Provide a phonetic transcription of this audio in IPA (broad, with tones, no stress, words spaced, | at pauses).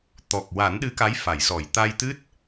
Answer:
t̪ɔ˨˩k̚ wa˨˩˦nɗɨ˧˥ka˧˥j fa˨˩˨jsɔ˨˩˨j t̪a˧jt̪ɨ˦˥t̚